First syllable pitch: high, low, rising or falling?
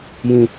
high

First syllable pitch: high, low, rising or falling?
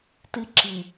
high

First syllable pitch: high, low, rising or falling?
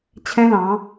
high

